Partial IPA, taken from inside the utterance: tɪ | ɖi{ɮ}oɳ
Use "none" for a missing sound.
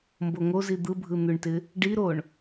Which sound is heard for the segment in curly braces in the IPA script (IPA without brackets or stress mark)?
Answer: ɾ